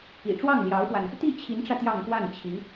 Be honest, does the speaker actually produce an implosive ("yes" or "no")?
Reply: no